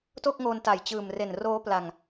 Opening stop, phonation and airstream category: plain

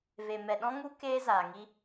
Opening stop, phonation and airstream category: implosive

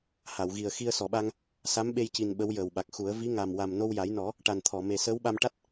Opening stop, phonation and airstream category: implosive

